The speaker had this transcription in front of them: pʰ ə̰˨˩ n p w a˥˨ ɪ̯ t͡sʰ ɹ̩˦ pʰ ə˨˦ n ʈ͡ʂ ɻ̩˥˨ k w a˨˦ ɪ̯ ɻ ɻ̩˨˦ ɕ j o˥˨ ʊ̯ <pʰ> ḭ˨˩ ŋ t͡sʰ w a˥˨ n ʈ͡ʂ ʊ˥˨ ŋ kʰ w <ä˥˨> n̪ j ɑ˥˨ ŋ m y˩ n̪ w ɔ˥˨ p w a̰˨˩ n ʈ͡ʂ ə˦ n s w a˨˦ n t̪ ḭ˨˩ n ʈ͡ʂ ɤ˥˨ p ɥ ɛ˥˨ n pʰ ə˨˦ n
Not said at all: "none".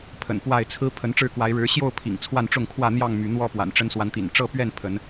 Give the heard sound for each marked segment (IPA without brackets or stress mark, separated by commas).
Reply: pʰ, ä˥˨